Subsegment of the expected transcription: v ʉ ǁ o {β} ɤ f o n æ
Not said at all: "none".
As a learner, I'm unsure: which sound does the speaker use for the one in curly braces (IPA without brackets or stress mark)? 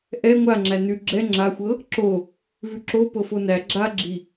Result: p